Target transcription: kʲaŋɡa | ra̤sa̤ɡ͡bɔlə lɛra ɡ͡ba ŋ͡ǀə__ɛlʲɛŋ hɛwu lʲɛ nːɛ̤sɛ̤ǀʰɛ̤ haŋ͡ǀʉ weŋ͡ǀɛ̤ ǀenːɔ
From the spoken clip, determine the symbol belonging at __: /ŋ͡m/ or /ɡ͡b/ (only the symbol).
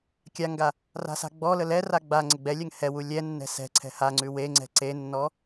ɡ͡b